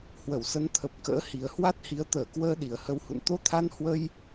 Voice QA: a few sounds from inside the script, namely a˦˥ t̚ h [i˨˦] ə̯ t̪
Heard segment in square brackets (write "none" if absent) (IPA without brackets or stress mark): i˨˦